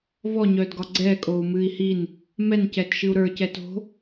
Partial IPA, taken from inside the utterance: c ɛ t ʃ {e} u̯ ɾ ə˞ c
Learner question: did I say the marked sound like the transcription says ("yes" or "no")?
no